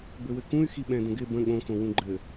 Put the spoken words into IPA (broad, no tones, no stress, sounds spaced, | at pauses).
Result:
b ɘ w ɘ k ũ y̯ x i ɓ ɛ̃ d ə̃ ɡ ɪ b ə̃ ɠ õ x õ w ũ ɡ͡ǃ ɘ